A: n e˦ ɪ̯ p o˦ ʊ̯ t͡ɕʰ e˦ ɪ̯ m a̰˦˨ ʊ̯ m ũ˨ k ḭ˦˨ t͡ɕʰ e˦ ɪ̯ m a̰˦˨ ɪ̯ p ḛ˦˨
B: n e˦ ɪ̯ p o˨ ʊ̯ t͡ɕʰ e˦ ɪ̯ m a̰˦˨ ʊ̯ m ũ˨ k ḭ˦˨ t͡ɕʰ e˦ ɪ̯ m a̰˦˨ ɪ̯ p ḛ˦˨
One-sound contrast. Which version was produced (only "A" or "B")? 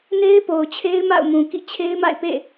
B